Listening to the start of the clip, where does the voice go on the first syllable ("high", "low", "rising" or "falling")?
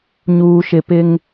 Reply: low